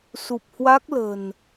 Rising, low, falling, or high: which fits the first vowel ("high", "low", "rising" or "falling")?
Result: low